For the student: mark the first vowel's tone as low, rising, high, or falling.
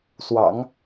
low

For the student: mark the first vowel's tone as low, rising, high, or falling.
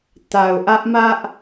low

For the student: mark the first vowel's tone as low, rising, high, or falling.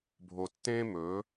low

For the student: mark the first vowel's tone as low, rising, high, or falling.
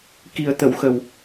low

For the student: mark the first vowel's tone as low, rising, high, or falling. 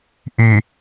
low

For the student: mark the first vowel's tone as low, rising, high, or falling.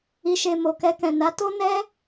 low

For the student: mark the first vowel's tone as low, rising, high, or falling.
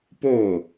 falling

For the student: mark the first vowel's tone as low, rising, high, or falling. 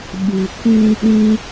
low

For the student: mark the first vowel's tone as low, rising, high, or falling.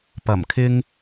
low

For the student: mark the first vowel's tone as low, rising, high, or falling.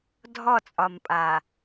falling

